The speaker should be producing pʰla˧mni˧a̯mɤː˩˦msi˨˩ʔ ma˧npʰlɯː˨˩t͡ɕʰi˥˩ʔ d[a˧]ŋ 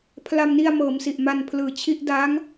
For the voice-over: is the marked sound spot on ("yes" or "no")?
no